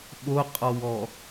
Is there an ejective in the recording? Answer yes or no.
yes